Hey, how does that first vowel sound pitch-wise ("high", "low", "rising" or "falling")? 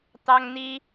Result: high